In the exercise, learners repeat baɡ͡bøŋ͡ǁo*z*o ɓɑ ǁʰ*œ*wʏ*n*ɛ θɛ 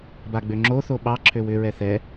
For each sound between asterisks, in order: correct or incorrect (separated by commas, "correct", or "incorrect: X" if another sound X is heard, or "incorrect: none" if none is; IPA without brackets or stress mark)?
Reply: incorrect: θ, incorrect: ø, incorrect: ɹ